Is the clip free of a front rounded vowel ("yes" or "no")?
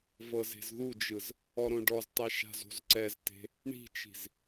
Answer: yes